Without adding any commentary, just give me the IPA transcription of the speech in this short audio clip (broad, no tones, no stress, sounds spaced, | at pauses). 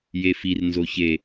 j e f i r n z o ç e